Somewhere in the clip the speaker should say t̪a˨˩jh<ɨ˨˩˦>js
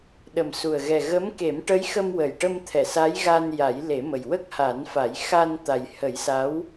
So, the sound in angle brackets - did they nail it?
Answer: no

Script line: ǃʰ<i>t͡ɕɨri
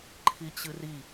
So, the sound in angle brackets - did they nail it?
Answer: yes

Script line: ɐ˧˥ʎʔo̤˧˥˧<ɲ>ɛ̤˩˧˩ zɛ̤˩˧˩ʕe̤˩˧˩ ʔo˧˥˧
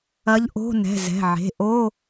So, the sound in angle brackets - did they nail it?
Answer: no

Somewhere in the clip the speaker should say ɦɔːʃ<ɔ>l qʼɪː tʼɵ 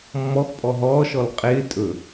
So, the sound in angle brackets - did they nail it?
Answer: yes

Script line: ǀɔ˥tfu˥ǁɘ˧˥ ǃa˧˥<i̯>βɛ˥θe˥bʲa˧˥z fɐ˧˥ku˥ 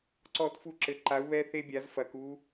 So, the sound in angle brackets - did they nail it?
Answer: no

